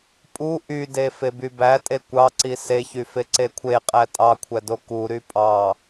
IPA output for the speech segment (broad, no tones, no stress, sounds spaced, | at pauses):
pʼ u ʔ y d e f e b y b æ tʼ e kʷ ɑ ǀ i s e ç y f e ǀ e kʷʰ e qʼ æ tʼ ɑ kʷʰ æ d o k u ɾ y pʼ ɑ